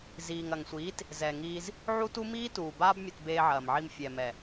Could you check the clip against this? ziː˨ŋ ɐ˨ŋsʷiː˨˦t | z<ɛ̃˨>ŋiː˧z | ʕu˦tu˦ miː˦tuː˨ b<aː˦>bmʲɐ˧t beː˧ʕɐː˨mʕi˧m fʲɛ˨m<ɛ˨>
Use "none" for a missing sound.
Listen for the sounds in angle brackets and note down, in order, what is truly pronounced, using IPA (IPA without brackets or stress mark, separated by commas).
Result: ɛ˨, aː˦, ɛ˨